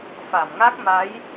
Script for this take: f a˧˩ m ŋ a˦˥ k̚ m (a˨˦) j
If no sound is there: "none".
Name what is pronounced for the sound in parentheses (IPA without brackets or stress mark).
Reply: a˨˦